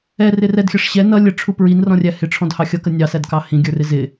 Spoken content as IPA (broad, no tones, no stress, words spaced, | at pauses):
ɛ rɪrɛdxʲʌʂ ɕɛ nʌ lʲəʈ͡ʂʰu pɹin rɔ̃rʲæhɪ ʈ͡ʂʰɔ̃dhɑxʲʌkə nʲɑsædkɑ hĩɡʲə˞rɪ zɪ